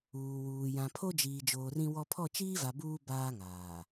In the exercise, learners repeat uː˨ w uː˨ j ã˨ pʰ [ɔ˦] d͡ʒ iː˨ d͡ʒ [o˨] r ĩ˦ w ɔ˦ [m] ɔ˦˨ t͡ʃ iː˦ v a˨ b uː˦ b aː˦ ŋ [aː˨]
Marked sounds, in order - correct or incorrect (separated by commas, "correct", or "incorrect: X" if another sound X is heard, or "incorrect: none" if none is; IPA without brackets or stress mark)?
incorrect: o˦, incorrect: oː˨, incorrect: pʰ, correct